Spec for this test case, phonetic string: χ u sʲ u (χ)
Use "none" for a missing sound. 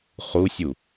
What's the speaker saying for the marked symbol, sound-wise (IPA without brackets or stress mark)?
none